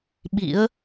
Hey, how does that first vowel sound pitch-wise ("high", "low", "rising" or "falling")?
rising